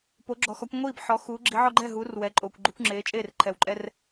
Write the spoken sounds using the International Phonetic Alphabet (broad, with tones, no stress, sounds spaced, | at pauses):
p o˨˦ ɡ͡ǁ ɔ˨ x ɔ˨˦ kʷ ŋʷ iː˥˨ b ħ ɔ˨˦ x uː˨˦ ɡ͡ǁ i˨˦ ʕ ɔ˦ ɡ͡ǃ ɛ˥˨ ɦ uː˨˦ r w ɛ˨˦ ǃʼ oː˨ kʷ ɡ͡ǃ u˨˦ kʷ ŋ͡ǁ eː˨˦ t͡ʃʼ eː˥˨ r ǃʰ ɛ˨ w ǃʼ ɛ˦ r